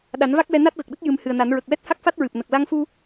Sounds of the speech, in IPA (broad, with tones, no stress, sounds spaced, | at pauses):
ɗ a˨˩˦ n v a˦˥ k̚ w ɛ˧ n a˦˥ t̚ ɣ ə˨˩ k̚ ɗ ə˦˥ k̚ j ɨ˨˩˦ m h ɨ˨˩ ə̯ n a˨˩˦ n ɹ ə˨˩ k̚ w ɛ˦˥ t̚ h a˦˥ k̚ f a˦˥ t̚ ɹ ɨ˨˩ p̚ n ə˨˩ k̚ l a˧ ŋ f u˧